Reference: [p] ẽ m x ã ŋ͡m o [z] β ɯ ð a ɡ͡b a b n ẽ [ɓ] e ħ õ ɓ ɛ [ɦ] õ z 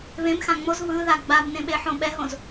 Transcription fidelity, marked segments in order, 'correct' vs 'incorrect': incorrect: β, correct, correct, correct

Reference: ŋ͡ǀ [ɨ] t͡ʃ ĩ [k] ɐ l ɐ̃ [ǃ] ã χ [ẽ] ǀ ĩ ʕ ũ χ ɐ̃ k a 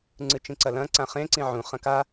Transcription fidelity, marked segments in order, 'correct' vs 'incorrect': correct, incorrect: ǀ, incorrect: ǀ, correct

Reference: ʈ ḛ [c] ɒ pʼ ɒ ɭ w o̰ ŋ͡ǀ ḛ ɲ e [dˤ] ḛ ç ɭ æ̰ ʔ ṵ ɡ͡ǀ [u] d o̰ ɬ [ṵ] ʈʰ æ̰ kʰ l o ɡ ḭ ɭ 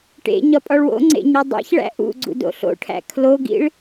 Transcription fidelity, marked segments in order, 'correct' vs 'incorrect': incorrect: ɲ, correct, incorrect: ṵ, incorrect: o̰

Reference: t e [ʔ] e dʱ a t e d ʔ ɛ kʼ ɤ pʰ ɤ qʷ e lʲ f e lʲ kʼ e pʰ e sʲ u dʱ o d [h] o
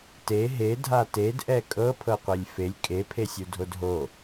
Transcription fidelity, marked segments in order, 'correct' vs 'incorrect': incorrect: ɦ, incorrect: ɦ

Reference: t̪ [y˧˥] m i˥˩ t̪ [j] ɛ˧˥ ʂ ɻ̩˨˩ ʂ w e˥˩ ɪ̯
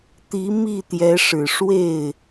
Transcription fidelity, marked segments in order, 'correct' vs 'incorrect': incorrect: i˧˥, correct

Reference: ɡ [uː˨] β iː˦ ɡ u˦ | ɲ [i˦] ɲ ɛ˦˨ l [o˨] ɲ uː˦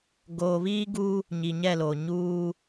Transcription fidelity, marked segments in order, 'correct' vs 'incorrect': incorrect: oː˨, incorrect: i˨, correct

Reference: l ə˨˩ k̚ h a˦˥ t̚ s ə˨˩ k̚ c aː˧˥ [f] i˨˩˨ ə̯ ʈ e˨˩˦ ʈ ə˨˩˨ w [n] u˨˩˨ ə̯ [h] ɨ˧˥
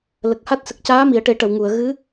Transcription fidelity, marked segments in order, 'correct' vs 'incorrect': incorrect: m, incorrect: ŋ, incorrect: ɣ

